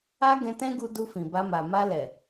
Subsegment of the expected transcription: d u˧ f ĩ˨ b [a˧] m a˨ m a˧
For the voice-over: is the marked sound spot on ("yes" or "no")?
yes